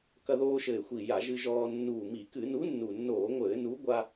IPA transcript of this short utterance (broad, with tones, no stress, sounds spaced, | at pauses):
k ɐ˧ ð oː˧ ʃ ɘ˨˩ ɪ̯ xʷ i˨˩ j a˧˩˧ ʒ ɨ˧ ʒ ɔː˧ nː uː˨˩ m i˧˩˧ k ɨ˧˩˧ n u˨˥ nː u˨˩ nː oː˧˩˧ ŋʷ ɘː˧˩˧ n u˨˥ ɡʷ a˧